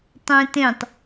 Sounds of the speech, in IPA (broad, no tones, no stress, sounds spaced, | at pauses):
tˤ ẽ t ẽ tˤ